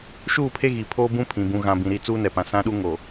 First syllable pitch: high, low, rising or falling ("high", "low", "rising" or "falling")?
falling